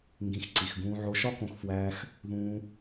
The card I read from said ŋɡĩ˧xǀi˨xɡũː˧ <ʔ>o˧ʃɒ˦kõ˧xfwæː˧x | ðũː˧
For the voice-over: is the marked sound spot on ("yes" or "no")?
no